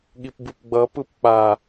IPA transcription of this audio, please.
ɠ i p b ɯ p ɡ͡b ʌ p ɯ p k͡p a

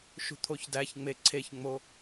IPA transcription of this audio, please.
ʃ ṳ t̪ʰ o ç d æ ç ŋ͡m e ǀʰ e ç ŋ͡m o

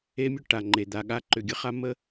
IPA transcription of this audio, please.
e˦ mʲ ʊ˦ ʈ a˨ ŋ͡ǃ e˨ d̪ a˨ ɠ a˦ ǃ ʏ˨ ɡʲ ə˦ χ a˦ m ə˦

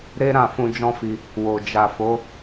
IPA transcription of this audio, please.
ɾ e˦ ɾ ã˦˨ f ũ˧ d͡ʒ ɔ̃˦ f i˧ | w o˨ d͡ʒ a˨ f o˨˦

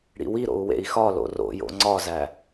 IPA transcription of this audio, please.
ɽ ḭ w i ɾ o̰ u̯ w ḛ i̯ x ɒ l o̰ r o̰ j o̰ ŋ͡ǀ ɒ z æ

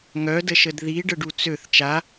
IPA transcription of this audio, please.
ŋ œ d ə ʃ ə d ð i ɖ ə ɖ u t͡s ø θ t͡ʃ a

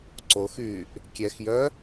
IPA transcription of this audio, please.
ǀ o x yː ʔ | kʲ ɛ x j œ

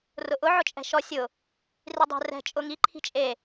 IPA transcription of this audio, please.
r ʊ ʔ ʊ ʕ ʊ t͡ʃʼ ɛ̤ ʃ ɔ sʲ ʊ | r i dˤ ɛ̤ r ɛ̤ t͡ʃʼ ʊ ŋ i ǃʰ i̤ t͡ʃʼ e

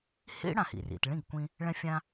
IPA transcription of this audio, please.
h ḭ˥ ɽ ã˩ h ḭ˩ r ḭ˩ t ɭ ĩ˥˩ ɡ kʷ ĩ˧ | ɭ ɛ̃˧ fʲ ã˧

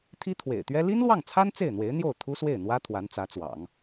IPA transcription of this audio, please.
t̪ʰ i˥ t̪ʰ w ḛ˨˩ ɪ̯ t̪ ɥ ɛ˥ l i˥ n l w ɑ˥˩ ŋ t͡sʰ a˥ n t͡s e˥˩ ɪ̯ n̪ w e˧˥ ɪ̯ n̪ j o˥˩ ʊ̯ t̪ʰ u˥ s w e˥˩ ɪ̯ n̪ w ä˥ t̪ʰ w a˧˥ n t͡s ä˧˥ t͡s w ɑ̰˨˩˦ ŋ

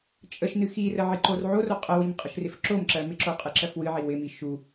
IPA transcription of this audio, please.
t͡ʃʼ ə ʃ n ɨ x i r ə ʕ i ǃ o r ʕ o r o qʼ ə w i m qʼ ə ʃ r ɪ f ǁ o m ǁ ɜ m ɪ ǁ o qʼ ɨ ǁ ɜ f w ɨ ʕ i w ɪ m i ʃ u

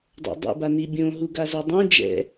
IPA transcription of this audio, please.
dˤ o̰ dˤ ḭ b a n i bʲ õ ɦ u ɡ a z o dˤ ũ d͡ʒ ɛ̰

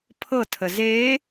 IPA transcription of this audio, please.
pʰ ɤ tʰ ə z e

